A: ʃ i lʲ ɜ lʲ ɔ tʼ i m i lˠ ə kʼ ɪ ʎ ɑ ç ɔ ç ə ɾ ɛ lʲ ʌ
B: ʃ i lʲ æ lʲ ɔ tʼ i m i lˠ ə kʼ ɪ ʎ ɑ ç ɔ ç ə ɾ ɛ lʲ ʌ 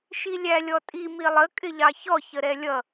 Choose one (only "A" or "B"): B